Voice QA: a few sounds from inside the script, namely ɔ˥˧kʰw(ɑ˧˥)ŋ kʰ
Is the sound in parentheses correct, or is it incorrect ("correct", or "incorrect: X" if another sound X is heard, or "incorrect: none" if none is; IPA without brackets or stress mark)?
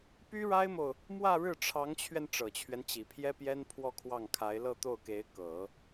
incorrect: ɑ˥˩